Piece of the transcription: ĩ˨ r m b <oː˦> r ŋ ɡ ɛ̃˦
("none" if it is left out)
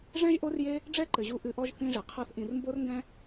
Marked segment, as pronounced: o˦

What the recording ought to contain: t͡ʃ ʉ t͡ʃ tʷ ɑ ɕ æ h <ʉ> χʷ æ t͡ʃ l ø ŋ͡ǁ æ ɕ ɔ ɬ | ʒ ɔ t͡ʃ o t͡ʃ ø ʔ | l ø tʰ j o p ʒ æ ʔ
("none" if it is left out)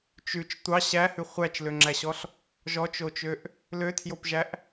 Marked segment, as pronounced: ʉ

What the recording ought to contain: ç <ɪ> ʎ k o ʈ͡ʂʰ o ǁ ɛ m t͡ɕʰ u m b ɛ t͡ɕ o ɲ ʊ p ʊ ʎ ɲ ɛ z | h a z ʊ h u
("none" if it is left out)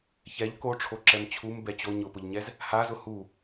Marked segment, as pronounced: ɛ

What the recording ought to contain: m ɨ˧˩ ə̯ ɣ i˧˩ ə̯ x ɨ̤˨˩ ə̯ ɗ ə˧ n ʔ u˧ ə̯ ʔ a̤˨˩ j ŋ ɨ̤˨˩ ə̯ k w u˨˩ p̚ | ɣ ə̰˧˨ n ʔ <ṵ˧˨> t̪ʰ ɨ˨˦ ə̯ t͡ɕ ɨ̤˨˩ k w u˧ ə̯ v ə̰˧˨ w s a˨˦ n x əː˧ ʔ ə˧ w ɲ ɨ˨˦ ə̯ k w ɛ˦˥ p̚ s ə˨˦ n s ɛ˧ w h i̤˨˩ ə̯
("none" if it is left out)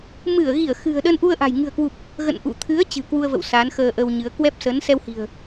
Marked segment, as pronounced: ṵ˧˨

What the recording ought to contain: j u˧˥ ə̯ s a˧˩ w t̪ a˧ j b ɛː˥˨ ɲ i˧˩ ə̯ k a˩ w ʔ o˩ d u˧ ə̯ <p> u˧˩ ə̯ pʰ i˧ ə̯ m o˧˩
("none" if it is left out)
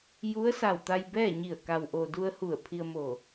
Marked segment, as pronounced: h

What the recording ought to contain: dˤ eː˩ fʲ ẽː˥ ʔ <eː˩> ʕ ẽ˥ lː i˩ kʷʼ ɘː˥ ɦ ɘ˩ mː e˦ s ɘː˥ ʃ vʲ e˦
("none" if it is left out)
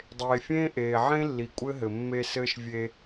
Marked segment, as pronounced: eː˩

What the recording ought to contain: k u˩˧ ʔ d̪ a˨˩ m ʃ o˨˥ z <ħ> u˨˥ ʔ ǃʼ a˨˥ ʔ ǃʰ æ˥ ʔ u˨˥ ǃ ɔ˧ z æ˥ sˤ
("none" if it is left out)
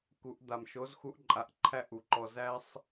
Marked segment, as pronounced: x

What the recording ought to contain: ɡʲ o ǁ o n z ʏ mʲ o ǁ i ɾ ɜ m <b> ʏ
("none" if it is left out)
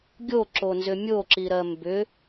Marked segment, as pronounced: b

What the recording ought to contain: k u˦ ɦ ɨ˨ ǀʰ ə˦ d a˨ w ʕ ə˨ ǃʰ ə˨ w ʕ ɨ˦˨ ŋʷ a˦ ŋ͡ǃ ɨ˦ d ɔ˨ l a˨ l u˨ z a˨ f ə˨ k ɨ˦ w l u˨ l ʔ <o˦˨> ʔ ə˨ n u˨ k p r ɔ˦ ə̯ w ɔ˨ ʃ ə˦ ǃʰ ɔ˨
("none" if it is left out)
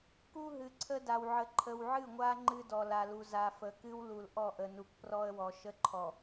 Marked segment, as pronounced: ɔ˦˨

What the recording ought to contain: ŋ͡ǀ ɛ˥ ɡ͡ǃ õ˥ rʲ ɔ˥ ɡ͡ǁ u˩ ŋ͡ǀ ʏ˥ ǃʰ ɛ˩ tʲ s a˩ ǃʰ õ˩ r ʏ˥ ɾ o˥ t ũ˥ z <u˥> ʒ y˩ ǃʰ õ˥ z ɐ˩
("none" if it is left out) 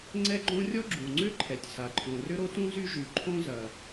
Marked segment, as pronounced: y˥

